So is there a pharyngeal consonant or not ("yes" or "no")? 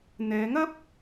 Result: no